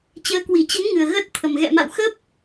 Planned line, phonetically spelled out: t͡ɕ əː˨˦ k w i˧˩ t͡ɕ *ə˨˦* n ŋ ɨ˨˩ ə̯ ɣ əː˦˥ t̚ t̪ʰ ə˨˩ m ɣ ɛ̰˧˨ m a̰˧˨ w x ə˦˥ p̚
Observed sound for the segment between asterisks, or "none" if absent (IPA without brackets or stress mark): ə˨˦